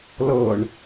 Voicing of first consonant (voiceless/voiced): voiced